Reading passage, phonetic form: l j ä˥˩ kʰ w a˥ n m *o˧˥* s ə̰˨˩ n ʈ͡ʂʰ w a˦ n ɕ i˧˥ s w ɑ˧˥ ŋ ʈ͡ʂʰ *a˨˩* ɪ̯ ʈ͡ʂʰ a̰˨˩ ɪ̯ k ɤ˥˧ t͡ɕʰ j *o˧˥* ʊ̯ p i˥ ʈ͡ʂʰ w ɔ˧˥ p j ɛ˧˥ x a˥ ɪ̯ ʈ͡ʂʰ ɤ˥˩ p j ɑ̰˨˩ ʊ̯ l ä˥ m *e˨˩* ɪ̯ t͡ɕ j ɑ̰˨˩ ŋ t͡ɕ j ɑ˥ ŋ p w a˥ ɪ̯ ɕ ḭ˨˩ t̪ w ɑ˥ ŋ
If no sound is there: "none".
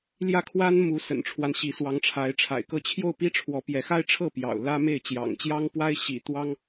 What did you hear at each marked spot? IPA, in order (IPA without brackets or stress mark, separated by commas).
u˧˥, a˧˥, o˥˩, e˥˩